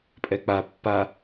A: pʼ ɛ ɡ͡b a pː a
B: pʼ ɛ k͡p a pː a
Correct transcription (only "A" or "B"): B